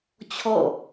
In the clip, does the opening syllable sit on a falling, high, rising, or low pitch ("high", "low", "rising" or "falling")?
falling